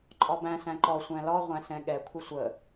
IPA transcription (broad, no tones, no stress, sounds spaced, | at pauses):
ǃʼ ɒ b æ̃ s æ̃ ǃ ɔ sʷ æ̃ l ɒ ʁʷ æ̃ s ɛ̃ ɠ ɛ kʷʰ ɪ sʷ ə